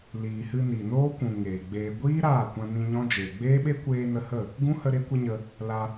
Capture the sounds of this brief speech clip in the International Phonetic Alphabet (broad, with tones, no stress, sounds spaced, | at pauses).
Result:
l iː˨ h ɨ˧ n i˨ n oː˦ kʷ ũ˨ ŋ eː˨ ɡ͡b eː˧ ɡʷ iː˦ ɾ aː˦˨ kʷ ã˧ n ĩ˧ ɲ ɔ̃˦ d͡ʒ eː˨ ɡ͡b eː˦ ɓ e˦ kʷ eː˧ n ə˧ h ə˦˨ | ɡ ũ˦ h ə˧ ɾ e˦ kʷ ə˦ ɲ ə˧ | l a˧